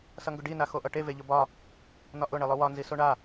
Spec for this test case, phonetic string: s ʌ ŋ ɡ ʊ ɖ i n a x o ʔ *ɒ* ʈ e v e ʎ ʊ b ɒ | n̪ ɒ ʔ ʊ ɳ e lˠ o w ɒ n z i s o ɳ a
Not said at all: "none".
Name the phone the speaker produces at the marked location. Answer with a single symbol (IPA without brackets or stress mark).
ʌ